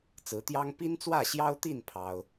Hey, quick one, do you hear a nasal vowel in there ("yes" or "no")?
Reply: no